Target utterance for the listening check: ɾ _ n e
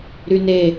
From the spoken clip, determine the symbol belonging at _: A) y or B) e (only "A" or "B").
A